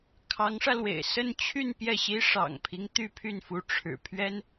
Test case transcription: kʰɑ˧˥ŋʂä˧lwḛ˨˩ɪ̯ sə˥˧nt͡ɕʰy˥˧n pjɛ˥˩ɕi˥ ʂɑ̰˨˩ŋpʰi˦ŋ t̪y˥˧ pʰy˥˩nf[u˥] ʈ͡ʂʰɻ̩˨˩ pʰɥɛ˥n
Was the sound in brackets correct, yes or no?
no